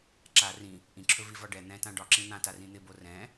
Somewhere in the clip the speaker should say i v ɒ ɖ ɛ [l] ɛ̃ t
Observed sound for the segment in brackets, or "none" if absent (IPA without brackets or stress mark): n̪